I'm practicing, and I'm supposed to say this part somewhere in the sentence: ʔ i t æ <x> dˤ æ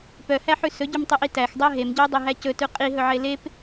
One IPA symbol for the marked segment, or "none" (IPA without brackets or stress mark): x